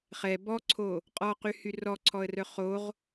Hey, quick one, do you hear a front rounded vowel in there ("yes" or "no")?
yes